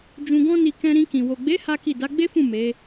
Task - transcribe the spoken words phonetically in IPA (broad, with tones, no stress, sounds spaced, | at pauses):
d͡ʒ ũ˧ ɡ ɔ̃˦ n i˧ k ɛ̃˧ ɾ ĩ˧ k ĩ˨ w o˨ ɡ͡b e˨˦ h a˦ k i˦˨ d a˨˦ ɡ͡b e˦ f ũ˦˨ m e˨˦